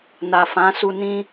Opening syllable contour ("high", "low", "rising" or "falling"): low